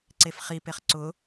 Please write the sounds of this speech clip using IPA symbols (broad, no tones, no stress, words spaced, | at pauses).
ǀefχi peχǀʊ